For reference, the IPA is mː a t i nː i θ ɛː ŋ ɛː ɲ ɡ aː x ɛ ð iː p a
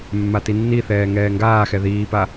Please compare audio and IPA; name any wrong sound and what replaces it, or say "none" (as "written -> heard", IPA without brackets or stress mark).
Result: ɲ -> ŋ